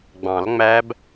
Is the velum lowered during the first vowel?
yes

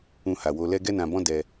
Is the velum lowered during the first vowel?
yes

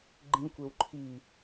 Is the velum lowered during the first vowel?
yes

